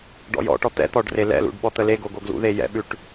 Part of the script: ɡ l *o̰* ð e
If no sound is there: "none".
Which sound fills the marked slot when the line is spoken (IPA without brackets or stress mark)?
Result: ṵ